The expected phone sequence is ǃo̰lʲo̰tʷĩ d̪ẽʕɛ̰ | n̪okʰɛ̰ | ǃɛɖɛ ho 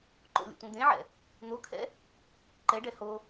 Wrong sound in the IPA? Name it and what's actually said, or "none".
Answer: none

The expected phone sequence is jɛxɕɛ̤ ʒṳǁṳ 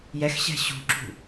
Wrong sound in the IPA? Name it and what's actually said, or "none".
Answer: ʒ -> ɕ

